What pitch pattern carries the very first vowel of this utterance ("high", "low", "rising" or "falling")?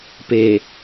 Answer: low